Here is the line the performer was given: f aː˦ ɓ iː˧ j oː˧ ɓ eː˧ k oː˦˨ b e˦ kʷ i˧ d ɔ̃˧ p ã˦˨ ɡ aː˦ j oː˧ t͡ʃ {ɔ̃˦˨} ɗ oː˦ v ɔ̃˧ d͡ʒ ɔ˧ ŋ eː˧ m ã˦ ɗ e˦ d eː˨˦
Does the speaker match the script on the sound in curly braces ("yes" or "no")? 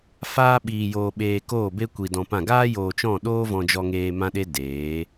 yes